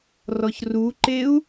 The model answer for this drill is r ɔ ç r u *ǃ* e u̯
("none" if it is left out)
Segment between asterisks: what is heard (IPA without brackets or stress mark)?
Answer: ǃ